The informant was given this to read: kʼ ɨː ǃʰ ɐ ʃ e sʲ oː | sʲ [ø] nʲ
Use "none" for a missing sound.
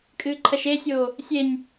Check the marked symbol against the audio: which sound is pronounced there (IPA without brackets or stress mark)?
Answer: e